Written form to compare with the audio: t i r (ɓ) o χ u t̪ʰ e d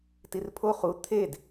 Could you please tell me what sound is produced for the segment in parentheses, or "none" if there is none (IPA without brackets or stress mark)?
pʰ